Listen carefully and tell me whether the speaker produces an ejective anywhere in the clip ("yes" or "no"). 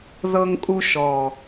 yes